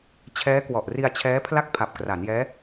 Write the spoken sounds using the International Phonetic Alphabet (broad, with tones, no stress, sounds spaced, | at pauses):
t͡ɕʰ ɛː˦˥ k w ɔ˨˩ ʔ r i˧ a̯ t͡ɕʰ ɛː˦˥ pʰ l a˥˩ k̚ pʰ a˨˩ p̚ k r a˩˦ n j ɛː˦˥